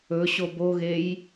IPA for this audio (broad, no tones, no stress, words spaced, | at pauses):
ɵ ɕoboɣej